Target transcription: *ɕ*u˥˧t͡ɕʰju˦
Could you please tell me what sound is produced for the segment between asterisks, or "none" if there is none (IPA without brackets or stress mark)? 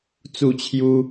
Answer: t͡s